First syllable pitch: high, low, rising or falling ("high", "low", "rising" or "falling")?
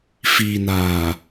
low